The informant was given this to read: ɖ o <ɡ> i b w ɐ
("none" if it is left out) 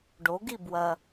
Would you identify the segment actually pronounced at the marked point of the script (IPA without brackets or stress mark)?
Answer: ɡ